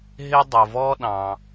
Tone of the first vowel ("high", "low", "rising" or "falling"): high